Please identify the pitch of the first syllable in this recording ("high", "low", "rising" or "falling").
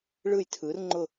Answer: falling